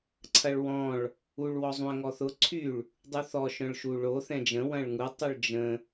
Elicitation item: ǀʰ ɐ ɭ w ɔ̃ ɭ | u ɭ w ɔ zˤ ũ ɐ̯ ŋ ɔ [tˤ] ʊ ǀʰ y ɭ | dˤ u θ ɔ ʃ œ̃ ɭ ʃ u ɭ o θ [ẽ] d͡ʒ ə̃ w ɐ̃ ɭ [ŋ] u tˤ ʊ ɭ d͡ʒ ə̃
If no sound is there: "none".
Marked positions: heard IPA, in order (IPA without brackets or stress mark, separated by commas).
θ, ɛ̃, ŋ